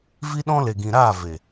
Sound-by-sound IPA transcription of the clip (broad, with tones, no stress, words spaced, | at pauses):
vi˦ɗɔ̃˦le˨ ɡĩ˨ɾaː˦˨ ve˨